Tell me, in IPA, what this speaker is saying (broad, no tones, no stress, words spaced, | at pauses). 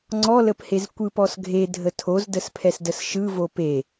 ŋ͡ǀɔləphez kʷɯpɔsɡʱedʱə tʰozdəspʰɛsdəs ʃɯvo pe